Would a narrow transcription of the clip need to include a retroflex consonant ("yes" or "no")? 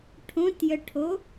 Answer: yes